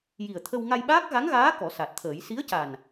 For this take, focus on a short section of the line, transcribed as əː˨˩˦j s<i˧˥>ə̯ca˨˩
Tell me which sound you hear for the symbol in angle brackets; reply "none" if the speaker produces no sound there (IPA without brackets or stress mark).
i˧˥